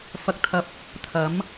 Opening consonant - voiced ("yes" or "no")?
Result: no